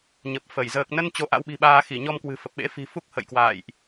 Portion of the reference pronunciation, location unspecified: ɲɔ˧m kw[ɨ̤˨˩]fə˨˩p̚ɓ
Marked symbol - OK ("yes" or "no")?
yes